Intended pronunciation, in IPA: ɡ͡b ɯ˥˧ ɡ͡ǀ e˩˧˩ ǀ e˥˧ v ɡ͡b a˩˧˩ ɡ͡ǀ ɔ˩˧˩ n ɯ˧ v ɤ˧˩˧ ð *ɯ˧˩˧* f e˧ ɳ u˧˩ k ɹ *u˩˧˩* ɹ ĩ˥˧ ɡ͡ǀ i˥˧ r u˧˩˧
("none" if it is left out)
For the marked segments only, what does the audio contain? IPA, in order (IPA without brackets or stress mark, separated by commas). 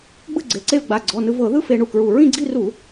ɯ˥˧, u˧˩